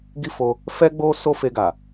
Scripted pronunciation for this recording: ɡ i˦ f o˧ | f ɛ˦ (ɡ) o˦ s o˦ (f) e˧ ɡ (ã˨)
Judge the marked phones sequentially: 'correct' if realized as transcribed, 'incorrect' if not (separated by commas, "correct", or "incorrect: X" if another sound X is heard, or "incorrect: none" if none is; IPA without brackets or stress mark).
incorrect: ɡ͡b, correct, incorrect: a˨